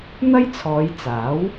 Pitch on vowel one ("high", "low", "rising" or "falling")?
high